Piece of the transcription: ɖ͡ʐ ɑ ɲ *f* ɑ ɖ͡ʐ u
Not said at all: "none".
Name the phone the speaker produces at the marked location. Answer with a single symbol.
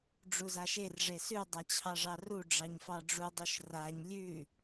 f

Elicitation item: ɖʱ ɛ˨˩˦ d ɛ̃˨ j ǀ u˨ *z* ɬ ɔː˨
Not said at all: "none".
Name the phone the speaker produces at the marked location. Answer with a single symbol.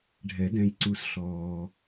s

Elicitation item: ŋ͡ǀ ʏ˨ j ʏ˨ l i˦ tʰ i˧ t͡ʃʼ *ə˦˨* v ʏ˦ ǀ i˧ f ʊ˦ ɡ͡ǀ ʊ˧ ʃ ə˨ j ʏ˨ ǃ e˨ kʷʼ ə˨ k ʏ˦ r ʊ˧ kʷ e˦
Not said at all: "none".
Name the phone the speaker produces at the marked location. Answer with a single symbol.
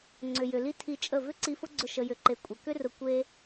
ə˦˨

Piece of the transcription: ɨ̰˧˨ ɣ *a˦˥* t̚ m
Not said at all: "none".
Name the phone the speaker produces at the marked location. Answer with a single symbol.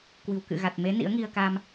a˨˩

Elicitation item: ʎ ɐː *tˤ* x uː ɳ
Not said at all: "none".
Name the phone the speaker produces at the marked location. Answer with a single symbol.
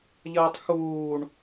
tˤ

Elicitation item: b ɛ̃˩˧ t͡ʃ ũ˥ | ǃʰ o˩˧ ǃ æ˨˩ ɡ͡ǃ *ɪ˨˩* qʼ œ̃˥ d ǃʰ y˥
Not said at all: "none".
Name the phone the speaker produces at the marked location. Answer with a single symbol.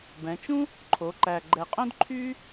ɛ˨˩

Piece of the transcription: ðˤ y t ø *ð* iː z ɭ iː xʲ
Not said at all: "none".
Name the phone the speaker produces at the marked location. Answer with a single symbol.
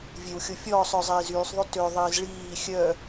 ðˤ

